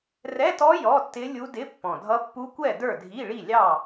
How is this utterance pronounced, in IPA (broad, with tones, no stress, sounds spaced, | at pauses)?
r ɛ˧˥˧ t ɔ˦˥ j ɔ˧˥˧ tː ɪ˦˥ lʲ u˦˥ d ɪ˧˥˧ pː ɔ̃˨˩ dʱ ʌ˦˥ pː u˦˥ kʷ ɛ˥˨ d ə˞˥˨ dʱ i˧˥˧ ɭ i˥˨ lʲ ɑ˥˨